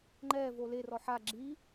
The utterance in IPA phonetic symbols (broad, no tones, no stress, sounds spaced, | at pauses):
ŋ͡ǃ ɛ v o l e r ɔ ħ a ɡ͡ǁ i